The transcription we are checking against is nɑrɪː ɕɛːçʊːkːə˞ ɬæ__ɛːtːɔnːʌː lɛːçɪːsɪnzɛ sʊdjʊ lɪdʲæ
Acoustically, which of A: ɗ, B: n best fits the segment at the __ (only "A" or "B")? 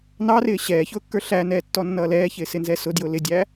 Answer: B